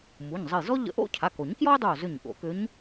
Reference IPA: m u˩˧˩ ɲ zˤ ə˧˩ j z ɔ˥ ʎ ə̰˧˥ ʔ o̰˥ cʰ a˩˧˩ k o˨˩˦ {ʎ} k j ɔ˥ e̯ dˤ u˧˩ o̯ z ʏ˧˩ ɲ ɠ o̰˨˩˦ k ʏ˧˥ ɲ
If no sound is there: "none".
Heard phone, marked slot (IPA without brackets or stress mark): ɲ